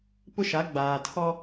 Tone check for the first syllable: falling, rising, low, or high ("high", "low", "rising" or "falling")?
high